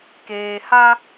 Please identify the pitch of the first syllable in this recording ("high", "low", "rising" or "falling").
low